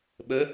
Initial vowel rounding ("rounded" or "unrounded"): unrounded